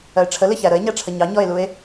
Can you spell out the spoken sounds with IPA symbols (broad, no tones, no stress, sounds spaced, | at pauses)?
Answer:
ɜ e̯ ʈ͡ʂʰ ə l ɪ ç æ ɾ ə e̯ ɲ æ ʈ͡ʂʰ ə ɲ ɑ ɲ ɔ e̯ l u e̯